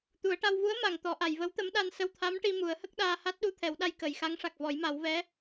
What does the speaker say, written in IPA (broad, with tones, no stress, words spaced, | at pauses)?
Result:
t̪u˨˩˦ə̯ʈa˧w vu˧˥ə̯ma˨˩˨ŋ t̪ɔ˨˩˦ʔa˨˩˨j və˧˥wt̪ə˧˥mɗa˧n sə˧wt̪ʰa˧˥mʈi˧ mu˨˩˦ə̯hə˦˥k̚ɗaː˧ ha˦˥t̚ɗu˧˥t̪ʰɛ˨˩˦wɗa˧j kə˨˩˨jxa˧˥ŋ ʂa˨˩k̚vɔ˨˩˦jma˨˩˦w vɛ˧˥